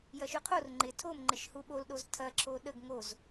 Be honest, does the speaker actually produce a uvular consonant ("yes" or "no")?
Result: yes